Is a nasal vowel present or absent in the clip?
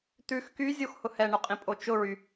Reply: present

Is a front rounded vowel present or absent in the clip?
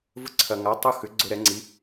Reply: present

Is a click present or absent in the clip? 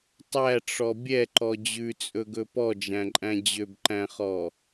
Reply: present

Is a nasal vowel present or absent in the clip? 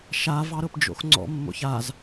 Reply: absent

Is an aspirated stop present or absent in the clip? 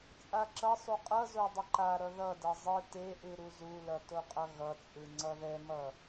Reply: absent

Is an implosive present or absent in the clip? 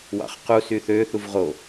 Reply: absent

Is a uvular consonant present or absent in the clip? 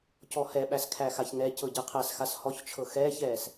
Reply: present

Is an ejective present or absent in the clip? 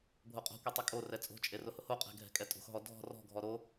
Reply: present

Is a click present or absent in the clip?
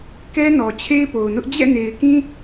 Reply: absent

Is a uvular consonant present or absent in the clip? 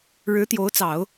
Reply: absent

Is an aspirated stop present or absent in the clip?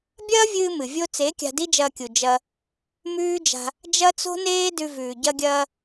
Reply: absent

